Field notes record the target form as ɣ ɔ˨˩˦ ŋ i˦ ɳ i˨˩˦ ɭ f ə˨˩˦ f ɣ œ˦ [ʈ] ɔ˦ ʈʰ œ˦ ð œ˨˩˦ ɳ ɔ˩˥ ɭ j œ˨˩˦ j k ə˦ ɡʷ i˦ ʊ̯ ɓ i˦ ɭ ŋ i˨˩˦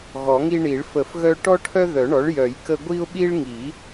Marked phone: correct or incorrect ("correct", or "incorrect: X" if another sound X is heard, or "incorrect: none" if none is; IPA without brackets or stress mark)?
correct